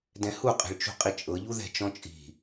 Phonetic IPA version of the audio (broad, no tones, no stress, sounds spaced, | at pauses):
d ɛ̃ h u qʼ e̤ ɭ t͡ʃ ṳ qʼ i t͡ʃʼ ɤ ʎ u ð ɛ̤ t͡ʃ ɔ̃ t͡ʃʼ i̤